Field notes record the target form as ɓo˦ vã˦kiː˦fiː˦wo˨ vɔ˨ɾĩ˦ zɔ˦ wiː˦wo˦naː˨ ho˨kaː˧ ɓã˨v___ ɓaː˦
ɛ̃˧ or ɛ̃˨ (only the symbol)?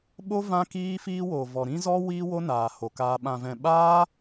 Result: ɛ̃˨